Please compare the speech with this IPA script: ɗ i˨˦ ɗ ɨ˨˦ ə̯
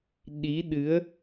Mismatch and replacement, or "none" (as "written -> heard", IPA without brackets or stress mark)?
none